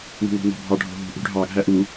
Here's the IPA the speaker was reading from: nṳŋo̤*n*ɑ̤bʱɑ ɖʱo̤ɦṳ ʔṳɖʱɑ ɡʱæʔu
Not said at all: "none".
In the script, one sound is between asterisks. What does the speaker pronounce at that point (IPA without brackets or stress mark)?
n